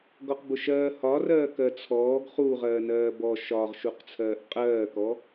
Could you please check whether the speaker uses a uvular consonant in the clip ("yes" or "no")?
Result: yes